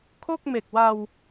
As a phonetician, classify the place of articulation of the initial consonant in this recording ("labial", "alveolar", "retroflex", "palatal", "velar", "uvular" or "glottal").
velar